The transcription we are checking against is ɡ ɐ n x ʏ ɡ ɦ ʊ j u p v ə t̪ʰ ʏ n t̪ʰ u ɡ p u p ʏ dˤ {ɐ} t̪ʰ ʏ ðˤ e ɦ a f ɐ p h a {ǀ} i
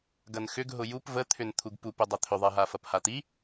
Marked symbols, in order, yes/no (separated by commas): yes, no